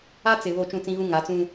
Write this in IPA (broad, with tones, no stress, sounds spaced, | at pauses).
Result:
a˦ t͡s ɪ˨ β o˦˨ t͡ʃ ũ˦˨ t͡s ĩ˦ ɣ ũ˦ ŋ a˨˦ t͡s ũ˦